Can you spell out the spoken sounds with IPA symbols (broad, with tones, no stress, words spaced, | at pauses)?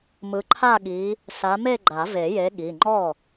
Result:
mɯ˨˦ǃʰa˥˧ɠi˨˦ | sa˨˦me˥˧ ɡ͡ǃa˨˩˦ve˨˩˦je˨˦ ɠi˩˧˩ ŋ͡ǃɔ˥˩